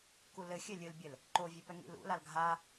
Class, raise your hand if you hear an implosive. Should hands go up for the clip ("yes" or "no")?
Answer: no